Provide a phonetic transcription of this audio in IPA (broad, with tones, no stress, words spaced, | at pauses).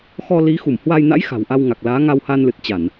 xɔ˧li˨˦xu˧˩mhwa˧j na̰˧˥j xa̤˨˩w ʔa˧wŋa˨˩k̚laː˨˦ŋa˧w ha˧nlɨ˨˩t̚t͡ɕa˧˩˨n